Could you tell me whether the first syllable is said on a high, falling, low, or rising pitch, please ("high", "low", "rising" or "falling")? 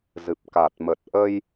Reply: low